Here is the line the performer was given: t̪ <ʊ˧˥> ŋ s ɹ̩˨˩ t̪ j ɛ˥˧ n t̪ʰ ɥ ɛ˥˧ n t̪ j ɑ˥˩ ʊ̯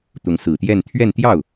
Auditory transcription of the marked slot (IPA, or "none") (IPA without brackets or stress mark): ʊ˧˥